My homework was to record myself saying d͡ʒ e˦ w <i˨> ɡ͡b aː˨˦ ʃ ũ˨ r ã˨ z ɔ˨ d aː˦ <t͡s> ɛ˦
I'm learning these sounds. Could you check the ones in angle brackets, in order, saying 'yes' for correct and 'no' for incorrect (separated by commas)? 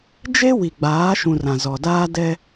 yes, no